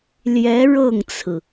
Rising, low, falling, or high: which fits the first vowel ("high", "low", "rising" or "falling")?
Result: rising